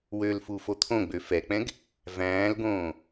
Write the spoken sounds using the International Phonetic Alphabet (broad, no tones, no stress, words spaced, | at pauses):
wølfu fot̪ʰõɡ͡bø fɛk͡pɛ̃ɡ | væ̃ːlɡõː